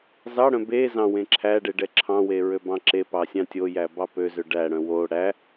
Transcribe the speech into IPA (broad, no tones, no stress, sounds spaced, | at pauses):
z ɑ ɽ œ̃ b e z ɑ̃ w ẽ ǁʰ æ ɖ e ɖ ɛ ǁʰ ɑ̃ w e ɹ ø b ɑ̃ ǁ e p ɑ sʲ ɑ̃ tʲ o j æ b ɑ p ø z ø ɖ æ ɽ œ̃ w o ɽ æ